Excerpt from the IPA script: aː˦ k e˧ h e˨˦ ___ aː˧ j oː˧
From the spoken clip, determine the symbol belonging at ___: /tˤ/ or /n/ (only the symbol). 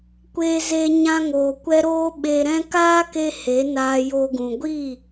n